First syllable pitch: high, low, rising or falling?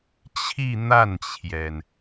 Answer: falling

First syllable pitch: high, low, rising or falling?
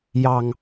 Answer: low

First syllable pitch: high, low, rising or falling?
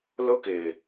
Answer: high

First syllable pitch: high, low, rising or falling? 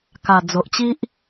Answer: low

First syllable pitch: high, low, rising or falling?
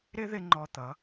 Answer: high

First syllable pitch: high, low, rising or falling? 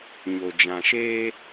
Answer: low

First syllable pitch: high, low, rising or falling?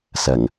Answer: low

